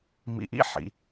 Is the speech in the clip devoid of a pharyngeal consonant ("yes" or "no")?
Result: no